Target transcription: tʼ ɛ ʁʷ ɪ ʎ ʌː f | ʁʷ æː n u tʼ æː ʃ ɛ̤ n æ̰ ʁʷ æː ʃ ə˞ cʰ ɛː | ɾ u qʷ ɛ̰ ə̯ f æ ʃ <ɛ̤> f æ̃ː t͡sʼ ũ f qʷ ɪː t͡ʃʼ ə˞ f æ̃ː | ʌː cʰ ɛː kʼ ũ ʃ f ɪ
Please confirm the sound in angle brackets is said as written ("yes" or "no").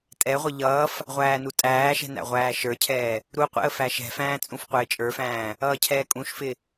yes